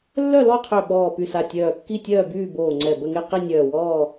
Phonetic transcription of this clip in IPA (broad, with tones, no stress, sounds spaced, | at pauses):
lː œ˥˨ l ɔ˥˨ qʰ ø˧˩ ɓ ɔː˧˩ p y˧˩ s a˧˩ tʲ œː˧˩ kː i˥˨ tʲ œː˥˨ b yː˥˨ b oː˧˩ ŋ͡ǀ ɛ˧˩ b ə˥˨ ŋ e˥˨ q i˥˨ nʲ œː˧˩ w ɔː˥˨